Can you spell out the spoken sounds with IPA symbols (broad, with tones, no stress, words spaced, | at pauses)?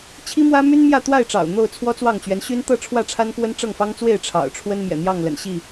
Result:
t͡ɕʰi˦mwä˦my˦n mjä˥˨t̪wa˥˨ɪ̯ʈ͡ʂɑ̰˨˩ʊ̯ n̪o˥˨ʊ̯ t͡sʰwɔ˦t͡swɑ˥˨ŋ t͡ɕɥɛ˨˦nɕy˦nt̪ɤ˥˨ ʈ͡ʂʰwä˥˨ʈ͡ʂʰa˦nkwə˦n ʈ͡ʂɤ˥˨ŋfɑ˦ŋt͡swe˥˨ɪ̯ ʈ͡ʂʰɑ̰˨˩ʊ̯ʈ͡ʂʰwə˦n mjɛ̰˨˩n̪jɑ˥˨ŋlə̰˨˩n ɕi˥˨